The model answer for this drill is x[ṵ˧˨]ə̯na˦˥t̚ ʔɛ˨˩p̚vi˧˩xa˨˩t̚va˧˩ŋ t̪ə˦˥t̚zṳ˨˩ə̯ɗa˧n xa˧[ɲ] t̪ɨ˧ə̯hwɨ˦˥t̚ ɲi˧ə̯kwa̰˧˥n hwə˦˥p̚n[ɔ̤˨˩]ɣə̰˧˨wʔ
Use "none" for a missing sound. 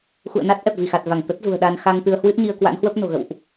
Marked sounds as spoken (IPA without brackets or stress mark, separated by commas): ṵ˧˨, ŋ, o̤˨˩